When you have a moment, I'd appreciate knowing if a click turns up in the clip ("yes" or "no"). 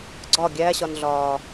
yes